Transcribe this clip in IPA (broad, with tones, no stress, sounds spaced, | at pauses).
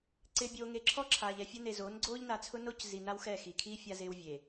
ǀ ɪː˨ bʲ oː˨ ŋ e˨ ǁʰ ɔ˦ ǁʰ aː˨ ʎ ɛ˨ fʲ o˦ n e˨ z oː˨˦ n ɡ͡ǀ oː˦ ʎ n a˨ t͡sʰ ʊ˦ n o˦ c z i˨ n a˦ w x ɛ˦˨ x i˨ kʰ i˦ fʲ a˦ z ɪː˦ w vʲ e˨